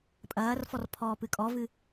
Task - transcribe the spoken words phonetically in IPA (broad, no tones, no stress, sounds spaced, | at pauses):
pʼ ɐː r f ɔ r pʰ ɔː p ɨ kʼ ɔ v ɨ